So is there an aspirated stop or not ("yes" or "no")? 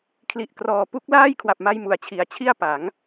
yes